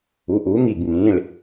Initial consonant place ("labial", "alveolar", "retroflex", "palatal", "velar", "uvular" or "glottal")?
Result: glottal